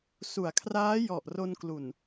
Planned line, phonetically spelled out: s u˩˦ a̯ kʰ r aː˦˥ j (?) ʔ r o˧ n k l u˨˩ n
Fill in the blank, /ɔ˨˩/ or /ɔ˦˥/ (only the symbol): ɔ˨˩